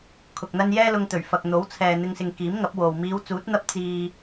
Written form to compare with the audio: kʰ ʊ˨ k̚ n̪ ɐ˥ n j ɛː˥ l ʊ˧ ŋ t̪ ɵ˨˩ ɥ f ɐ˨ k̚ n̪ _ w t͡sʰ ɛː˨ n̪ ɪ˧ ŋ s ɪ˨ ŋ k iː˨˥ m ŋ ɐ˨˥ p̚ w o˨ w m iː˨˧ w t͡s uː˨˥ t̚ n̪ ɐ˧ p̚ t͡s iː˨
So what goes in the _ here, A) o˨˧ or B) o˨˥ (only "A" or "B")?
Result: B